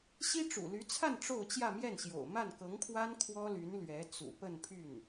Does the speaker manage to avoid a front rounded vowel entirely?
no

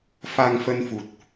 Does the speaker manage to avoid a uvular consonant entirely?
yes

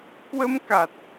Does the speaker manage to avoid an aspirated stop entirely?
yes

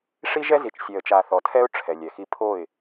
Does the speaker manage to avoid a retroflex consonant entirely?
no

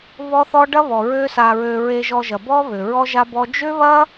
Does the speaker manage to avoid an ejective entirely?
yes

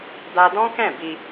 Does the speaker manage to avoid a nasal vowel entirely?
no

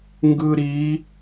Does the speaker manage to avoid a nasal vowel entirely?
yes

